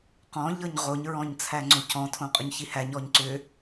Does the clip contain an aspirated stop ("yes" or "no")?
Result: yes